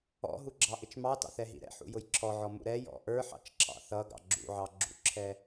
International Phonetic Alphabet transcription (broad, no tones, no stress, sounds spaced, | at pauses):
ɔ̰ ɦ u ɡ͡ǁ ɑ ʔ ɪ t͡ʃ m ɑ t ɑ̰ θ ɛ ɦ ḭ ɾ ɛ̰ ħ ṵ j ʊ j ǁʰ ɔ ʕ ɔ m ṵ ɾ ɛ j ɔ̰ ʔ ə˞ ħ ɑ̰ t͡ʃ ǁʰ ɑ̰ θ ʌ ɡ ɑ̰ ɡ͡ǁ ṵ ʕ ɑ ɡ͡ǁ ṵ ǁʰ ɛ